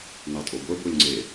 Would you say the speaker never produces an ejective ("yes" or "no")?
no